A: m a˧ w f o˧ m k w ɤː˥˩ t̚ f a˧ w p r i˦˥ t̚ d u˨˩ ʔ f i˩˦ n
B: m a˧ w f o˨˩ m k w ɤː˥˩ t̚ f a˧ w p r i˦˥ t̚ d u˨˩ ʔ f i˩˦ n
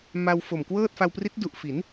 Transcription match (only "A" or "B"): B